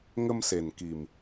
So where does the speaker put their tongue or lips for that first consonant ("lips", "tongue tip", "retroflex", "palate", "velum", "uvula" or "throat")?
velum